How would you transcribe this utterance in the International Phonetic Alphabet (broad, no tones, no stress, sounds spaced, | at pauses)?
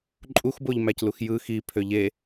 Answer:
ǃʼ u x b o ʎ m æ c l u x j ɯ x i pʰ ø ʎ e